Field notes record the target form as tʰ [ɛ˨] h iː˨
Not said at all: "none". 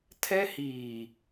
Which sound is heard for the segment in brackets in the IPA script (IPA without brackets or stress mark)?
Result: ɛ˦